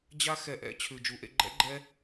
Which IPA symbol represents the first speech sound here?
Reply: d͡ʑ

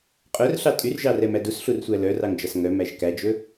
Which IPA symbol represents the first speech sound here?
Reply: qʼ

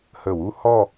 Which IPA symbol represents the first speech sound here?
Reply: h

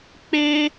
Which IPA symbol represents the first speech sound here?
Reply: k͡p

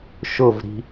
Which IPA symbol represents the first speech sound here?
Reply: ʃ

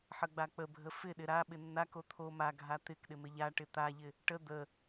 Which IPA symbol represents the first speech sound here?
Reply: ħ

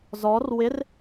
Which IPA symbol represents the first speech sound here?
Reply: z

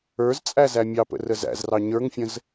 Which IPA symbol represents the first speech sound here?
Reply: ə˞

